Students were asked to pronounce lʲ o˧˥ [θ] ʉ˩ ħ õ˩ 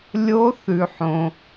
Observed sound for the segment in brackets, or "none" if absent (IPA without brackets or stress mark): θ